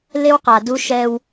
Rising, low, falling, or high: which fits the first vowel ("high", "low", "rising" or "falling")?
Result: high